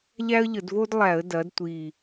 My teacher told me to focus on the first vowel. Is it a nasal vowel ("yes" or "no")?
no